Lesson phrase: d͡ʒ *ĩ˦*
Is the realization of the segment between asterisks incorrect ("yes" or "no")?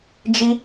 yes